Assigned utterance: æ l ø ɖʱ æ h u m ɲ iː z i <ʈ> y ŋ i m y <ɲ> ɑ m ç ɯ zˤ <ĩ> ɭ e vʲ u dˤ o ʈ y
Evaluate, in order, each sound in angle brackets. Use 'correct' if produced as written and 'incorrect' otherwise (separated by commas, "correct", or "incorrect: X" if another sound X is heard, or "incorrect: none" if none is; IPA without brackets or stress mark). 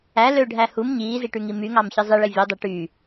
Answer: correct, incorrect: ŋ, incorrect: i